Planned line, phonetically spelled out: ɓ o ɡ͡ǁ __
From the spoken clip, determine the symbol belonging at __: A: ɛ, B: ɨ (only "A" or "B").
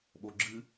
B